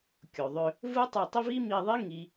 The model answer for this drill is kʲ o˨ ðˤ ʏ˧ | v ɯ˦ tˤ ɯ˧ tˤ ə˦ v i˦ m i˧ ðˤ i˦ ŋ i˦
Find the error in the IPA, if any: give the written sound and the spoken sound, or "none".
ə˦ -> ɪ˦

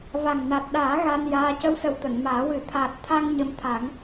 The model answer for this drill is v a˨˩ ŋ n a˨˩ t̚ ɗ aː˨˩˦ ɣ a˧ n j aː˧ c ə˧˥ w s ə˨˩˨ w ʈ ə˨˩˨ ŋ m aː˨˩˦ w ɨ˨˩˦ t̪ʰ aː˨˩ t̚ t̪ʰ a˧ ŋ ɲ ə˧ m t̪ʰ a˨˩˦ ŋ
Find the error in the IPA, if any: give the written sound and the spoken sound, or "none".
ʈ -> t̪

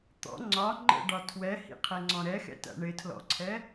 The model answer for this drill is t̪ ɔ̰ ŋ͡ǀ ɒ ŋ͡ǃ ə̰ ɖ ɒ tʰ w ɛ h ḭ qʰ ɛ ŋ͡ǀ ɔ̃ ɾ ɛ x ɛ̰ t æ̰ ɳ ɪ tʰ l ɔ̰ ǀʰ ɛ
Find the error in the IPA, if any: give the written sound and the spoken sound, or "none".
none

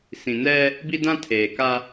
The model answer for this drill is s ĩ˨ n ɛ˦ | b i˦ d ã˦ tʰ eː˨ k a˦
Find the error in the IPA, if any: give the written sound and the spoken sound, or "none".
none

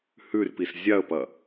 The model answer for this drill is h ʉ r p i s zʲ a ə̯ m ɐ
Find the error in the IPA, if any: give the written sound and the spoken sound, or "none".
m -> p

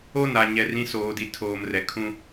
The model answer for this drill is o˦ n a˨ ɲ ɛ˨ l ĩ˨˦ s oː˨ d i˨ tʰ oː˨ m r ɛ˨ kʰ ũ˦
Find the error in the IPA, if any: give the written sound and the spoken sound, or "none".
l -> r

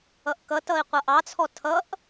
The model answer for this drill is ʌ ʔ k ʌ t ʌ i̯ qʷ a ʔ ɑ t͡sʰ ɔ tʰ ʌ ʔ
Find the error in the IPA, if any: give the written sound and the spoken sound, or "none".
a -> ʌ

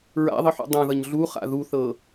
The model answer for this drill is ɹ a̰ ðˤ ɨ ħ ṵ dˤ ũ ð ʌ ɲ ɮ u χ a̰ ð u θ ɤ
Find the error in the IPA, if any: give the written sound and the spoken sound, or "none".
none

